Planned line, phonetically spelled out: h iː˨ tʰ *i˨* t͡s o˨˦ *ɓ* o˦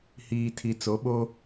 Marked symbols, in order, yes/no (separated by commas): yes, yes